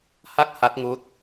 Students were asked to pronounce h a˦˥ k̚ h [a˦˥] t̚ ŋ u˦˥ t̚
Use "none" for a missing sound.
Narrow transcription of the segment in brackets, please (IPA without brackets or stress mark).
a˦˥